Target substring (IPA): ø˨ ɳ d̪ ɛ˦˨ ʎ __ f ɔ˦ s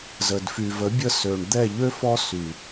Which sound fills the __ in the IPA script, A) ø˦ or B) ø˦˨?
A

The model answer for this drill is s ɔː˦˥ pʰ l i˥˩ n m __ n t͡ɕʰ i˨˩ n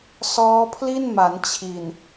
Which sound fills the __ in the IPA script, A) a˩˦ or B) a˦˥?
A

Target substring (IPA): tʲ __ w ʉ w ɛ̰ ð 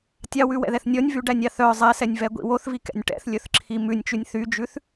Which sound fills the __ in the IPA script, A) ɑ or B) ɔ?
A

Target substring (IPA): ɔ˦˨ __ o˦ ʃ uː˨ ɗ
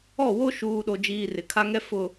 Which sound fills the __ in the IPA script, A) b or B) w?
B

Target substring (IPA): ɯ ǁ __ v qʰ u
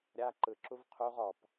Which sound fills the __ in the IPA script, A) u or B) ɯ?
A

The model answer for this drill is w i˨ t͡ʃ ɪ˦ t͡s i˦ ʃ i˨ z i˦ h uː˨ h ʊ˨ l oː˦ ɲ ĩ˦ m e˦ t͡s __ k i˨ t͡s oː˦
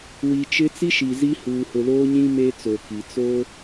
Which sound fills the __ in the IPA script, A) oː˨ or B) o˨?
B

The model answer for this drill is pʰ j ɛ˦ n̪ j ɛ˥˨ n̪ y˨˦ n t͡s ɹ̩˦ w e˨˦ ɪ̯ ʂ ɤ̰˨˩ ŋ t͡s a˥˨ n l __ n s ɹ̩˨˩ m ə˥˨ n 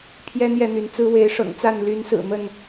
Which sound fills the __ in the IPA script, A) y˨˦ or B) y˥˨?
A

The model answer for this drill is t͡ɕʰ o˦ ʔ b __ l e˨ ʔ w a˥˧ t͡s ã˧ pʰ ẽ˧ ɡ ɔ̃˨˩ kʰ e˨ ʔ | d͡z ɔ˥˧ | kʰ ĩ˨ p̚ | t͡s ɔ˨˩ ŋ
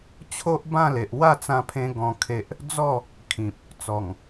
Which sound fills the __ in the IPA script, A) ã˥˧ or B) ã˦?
A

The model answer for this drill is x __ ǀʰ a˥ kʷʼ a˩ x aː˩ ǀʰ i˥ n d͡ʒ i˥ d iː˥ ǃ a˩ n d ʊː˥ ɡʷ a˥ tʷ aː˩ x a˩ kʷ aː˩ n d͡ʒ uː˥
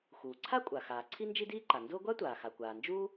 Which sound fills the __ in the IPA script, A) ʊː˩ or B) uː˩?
B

